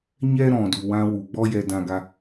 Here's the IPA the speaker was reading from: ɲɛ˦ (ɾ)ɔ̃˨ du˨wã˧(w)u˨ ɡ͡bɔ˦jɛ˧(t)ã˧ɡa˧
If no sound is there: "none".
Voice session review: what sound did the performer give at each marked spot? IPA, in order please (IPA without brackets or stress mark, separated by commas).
ɾ, w, d